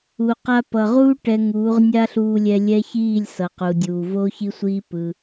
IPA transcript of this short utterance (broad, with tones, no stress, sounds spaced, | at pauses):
u˨ q a˧ p ʌ˨ ʁ uː˦ ʈ ɛ˧ ŋ uː˨˦ ʁ nʲ a˦ ɬ uː˧ lʲ ɛ˧ lʲ ɛ˦ ç iː˦˨ lʲ s ʌ˨ q u˨ dʲ uː˨ v oː˦ ç i˦ sʷ iː˦ p ɯ˧